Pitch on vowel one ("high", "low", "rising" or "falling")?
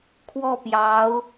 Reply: falling